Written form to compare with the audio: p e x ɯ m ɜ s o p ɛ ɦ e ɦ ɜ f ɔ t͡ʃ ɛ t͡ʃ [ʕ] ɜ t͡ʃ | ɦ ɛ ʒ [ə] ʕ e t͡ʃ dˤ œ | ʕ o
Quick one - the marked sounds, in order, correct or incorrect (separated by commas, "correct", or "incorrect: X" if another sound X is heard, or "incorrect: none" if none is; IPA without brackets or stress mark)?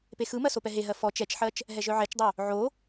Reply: incorrect: ħ, incorrect: œ